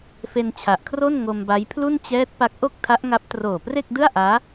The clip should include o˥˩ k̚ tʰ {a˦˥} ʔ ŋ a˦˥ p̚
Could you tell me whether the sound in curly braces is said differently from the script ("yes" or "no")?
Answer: no